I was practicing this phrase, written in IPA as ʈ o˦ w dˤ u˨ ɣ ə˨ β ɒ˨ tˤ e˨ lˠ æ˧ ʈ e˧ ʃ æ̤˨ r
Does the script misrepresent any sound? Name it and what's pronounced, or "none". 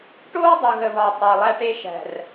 none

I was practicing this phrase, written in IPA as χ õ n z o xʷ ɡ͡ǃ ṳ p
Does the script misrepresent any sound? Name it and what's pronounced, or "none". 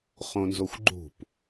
none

